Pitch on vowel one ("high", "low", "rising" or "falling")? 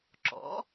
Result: rising